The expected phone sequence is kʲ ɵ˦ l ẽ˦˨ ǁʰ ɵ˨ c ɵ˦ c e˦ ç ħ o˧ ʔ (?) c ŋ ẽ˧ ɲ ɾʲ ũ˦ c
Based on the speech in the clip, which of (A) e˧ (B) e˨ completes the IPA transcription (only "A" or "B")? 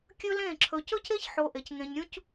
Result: B